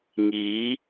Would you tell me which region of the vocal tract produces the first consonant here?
velum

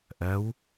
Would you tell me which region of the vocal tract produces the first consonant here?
throat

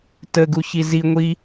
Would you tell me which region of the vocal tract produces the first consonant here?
tongue tip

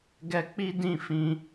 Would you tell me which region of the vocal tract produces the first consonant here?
velum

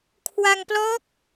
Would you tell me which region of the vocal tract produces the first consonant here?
velum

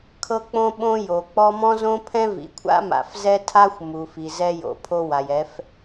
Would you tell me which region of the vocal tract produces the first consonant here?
velum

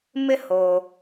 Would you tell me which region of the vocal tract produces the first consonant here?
lips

